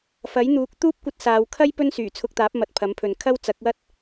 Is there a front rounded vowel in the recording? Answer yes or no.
yes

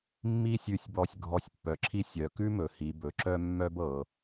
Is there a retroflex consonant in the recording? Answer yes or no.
no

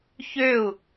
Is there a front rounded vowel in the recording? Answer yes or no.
yes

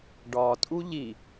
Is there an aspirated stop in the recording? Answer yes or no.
no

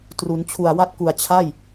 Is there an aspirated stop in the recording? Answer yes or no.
yes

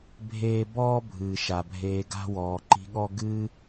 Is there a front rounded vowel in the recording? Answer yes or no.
no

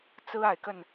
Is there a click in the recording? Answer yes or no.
no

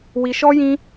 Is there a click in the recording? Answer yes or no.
no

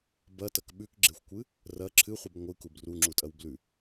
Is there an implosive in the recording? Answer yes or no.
yes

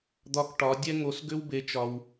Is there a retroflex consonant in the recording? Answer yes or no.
yes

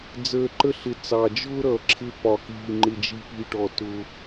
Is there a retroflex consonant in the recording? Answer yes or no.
yes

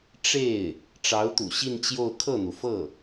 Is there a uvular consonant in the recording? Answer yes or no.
no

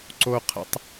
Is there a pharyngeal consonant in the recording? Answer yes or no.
no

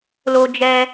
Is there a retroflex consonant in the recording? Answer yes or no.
no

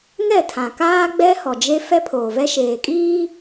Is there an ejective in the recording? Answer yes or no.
yes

